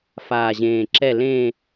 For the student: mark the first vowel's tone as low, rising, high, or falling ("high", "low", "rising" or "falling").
low